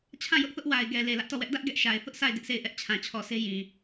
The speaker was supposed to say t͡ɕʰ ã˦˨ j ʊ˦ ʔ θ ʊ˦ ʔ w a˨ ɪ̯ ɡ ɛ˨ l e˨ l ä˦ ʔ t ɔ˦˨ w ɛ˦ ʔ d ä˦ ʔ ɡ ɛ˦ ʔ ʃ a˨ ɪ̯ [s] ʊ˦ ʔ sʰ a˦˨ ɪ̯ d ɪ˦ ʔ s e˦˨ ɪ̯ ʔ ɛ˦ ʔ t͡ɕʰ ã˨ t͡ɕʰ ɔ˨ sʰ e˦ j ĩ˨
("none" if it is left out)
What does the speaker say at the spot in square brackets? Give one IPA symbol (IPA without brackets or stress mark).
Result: θ